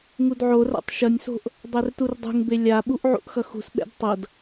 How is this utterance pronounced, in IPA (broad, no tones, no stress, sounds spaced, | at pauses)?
ŋ u d ʕ o r a̰ tˤ ʃ ʌ nʲ s o̤ ʔ | dˤ ɛ r t u r dˤ ṳ ŋ b e lʲ a ɓ u ʔ ʕ ṵ ʔ x ʌ x ṳ s ɓ ɛ̰ d tˤ ʌ d